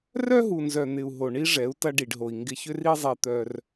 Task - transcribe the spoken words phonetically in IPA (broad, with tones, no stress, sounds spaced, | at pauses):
r œ˦ ɦ u˨ n z œ˨ n̪ ɪ˨ u̯ ɦ o˨ ɳ i˦ ʐ ɛ˨˦ u̯ t ɐ˧ ɖ i˨ ɖ ɦ o˨ i̯ ŋ ɡ ɪ˧ ç ʏ˦ r i˦ zˤ ɛ˧ t̪ œ˧ r